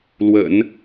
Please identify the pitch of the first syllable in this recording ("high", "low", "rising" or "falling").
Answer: low